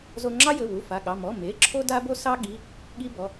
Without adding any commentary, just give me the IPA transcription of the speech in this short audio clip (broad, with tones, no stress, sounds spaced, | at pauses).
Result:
z o˦ ŋ͡ǁ ɑ˦ j ɘ˩˧˩ w u˩˧˩ f a˩˧˩ ɠ ɑ˩˧˩ m ɔ˩˧˩ m e˩˧˩ ǁʰ o˦ d a˦ b o˦ s ɑ˦ ɠ i˩˧˩ | ɠ i˦ b ɔ˩˧˩